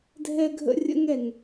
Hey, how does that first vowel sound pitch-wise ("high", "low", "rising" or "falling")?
high